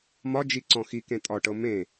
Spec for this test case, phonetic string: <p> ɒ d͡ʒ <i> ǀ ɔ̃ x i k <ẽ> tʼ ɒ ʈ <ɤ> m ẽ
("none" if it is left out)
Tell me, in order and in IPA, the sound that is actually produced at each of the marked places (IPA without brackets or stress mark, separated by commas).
m, i, ẽ, ɤ